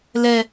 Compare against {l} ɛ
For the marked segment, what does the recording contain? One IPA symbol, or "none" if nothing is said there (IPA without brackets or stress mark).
l